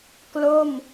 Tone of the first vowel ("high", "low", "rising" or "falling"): falling